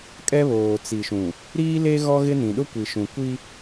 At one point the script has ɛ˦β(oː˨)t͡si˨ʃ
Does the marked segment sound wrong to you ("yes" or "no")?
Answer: no